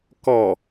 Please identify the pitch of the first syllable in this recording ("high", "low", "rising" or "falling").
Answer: low